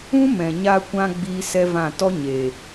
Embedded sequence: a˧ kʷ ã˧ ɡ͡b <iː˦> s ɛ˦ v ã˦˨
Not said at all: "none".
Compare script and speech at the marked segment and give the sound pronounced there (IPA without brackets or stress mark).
iː˦